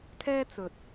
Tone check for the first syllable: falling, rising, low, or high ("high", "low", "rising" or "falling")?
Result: high